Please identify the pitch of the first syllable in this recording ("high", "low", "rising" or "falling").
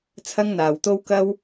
high